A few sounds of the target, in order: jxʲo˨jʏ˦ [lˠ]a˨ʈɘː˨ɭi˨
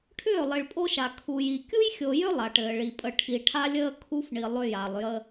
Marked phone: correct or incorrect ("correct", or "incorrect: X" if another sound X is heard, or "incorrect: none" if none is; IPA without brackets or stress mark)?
correct